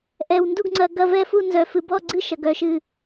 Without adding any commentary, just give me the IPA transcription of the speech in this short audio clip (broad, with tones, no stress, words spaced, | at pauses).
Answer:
ʔɛ˧wndu˥˧ɡŋ͡ǀɐ˧ ɡɐ˥˧vɛ˥˧fu˥˧nzœ˧ fɨ˧bɔ˥˧ɡ͡ǀɨ˥˧ ʃɐ˧ɡœ˥˧ʃɨ˥˧